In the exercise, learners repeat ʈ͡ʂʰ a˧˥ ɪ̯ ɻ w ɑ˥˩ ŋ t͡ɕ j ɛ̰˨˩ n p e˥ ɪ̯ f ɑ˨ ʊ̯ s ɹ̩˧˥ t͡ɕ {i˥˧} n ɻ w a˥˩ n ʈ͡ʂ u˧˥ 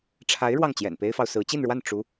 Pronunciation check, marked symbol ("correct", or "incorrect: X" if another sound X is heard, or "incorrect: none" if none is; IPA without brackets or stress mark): correct